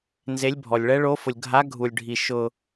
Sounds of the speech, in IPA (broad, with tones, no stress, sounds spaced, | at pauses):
n z e˦˥ lʲ bʱ ɔ˧ lʲ ɭ ɛ˦˥ ɭ o˦˥ f ʊ˧ lʲ ɡʱ a˦˥ ɡʱ u˧ lʲ ɖʱ i˧ ʃ ʊ˧